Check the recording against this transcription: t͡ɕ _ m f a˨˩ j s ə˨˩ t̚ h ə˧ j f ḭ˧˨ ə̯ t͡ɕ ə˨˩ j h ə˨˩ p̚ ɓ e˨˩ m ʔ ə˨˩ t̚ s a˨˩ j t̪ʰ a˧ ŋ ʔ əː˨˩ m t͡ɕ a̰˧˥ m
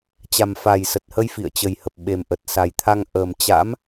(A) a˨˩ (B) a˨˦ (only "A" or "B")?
A